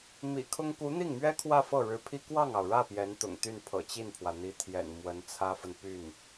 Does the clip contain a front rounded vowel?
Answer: yes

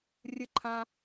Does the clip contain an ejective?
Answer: no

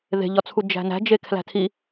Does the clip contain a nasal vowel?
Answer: no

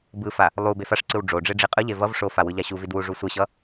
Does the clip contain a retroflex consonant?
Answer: yes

